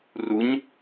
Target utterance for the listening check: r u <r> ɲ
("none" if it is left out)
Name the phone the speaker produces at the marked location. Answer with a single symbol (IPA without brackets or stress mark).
none